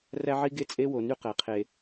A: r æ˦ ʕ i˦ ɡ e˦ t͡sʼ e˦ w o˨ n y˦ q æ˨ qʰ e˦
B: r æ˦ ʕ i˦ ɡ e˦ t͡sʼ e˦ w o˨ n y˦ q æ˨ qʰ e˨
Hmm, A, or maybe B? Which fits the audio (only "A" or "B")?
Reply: B